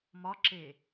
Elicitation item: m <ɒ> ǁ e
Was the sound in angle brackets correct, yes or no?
yes